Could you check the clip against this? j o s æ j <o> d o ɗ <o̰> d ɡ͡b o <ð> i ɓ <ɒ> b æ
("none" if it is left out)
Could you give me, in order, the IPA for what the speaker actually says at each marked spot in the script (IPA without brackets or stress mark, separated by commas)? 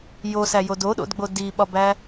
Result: o, o̰, d, ɒ